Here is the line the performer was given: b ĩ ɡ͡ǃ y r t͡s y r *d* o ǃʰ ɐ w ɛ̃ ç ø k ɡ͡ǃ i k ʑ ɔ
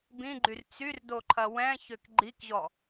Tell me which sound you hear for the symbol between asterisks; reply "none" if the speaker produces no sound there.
d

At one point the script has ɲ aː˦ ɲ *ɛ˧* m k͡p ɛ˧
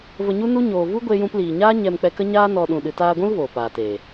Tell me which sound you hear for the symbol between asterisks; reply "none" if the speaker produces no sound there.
ɛ˧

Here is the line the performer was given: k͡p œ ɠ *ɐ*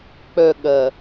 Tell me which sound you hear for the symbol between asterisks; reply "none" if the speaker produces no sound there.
ɐ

